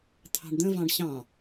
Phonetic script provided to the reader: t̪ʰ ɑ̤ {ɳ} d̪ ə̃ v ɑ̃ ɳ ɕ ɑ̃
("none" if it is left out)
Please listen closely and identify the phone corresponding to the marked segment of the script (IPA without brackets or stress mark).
ɳ